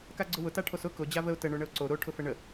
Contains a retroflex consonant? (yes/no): yes